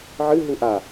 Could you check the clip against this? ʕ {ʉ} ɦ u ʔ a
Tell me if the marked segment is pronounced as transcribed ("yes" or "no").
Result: no